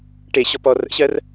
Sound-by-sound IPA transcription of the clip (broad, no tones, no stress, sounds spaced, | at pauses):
ʈ e ɕ ɔ p ɔː r ə̰ ɕ ɜ r